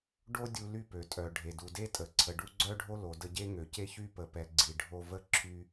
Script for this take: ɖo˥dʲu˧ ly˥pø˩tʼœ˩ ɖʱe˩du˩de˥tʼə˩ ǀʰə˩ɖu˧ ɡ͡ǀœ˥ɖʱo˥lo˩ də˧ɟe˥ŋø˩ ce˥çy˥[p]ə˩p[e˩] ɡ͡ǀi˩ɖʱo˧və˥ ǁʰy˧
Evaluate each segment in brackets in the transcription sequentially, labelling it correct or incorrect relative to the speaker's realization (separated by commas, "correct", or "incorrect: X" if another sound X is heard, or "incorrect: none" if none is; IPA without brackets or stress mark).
correct, incorrect: ɛ˩